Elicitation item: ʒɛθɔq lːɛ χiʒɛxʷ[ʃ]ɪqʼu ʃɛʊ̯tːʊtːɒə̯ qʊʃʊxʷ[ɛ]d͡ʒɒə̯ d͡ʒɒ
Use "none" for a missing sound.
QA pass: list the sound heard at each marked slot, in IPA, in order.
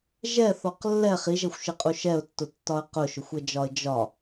ʃ, ɛ

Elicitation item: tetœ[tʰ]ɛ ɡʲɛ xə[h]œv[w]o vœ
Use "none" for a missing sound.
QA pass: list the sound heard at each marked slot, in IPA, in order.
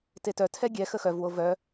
tʰ, x, w

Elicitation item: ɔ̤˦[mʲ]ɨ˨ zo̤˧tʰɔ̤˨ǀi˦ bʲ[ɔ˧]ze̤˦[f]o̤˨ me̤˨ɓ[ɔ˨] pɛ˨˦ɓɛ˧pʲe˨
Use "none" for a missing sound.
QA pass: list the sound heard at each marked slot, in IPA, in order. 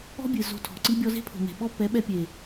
bʲ, ɔ˧, pʰ, ɔ˦

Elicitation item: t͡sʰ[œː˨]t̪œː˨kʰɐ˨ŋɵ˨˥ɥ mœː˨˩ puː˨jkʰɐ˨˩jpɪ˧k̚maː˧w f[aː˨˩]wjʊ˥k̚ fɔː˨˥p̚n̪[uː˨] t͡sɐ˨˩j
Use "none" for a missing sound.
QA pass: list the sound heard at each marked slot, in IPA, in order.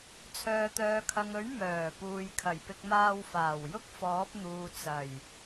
œː˨, aː˨˩, uː˨

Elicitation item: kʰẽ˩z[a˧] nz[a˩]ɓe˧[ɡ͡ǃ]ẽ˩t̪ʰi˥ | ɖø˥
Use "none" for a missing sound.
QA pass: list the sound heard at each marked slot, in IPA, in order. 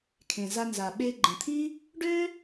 a˧, a˩, ɡ͡ǃ

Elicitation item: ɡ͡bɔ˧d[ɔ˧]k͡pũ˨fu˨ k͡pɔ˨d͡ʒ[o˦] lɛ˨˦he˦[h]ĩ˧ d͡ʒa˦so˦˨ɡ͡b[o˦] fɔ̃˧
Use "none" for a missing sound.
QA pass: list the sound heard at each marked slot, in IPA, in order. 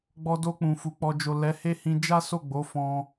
o˧, o˨, h, o˨˦

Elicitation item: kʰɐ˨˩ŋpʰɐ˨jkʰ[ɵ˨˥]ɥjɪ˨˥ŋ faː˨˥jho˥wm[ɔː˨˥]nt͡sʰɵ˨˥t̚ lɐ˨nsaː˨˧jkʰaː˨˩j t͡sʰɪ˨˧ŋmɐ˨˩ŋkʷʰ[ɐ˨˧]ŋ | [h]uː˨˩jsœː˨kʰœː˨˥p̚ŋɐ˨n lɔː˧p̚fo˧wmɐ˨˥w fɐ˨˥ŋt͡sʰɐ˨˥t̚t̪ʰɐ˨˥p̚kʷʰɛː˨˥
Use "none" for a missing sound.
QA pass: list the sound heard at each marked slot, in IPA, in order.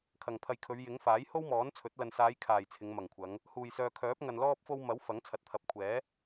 ɵ˨˧, ɔː˨˥, ɐ˨˧, h

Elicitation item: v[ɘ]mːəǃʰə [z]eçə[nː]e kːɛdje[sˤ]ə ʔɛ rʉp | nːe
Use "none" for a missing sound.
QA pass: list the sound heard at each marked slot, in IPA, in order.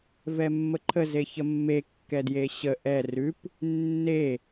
ɛ, z, mː, ɕ

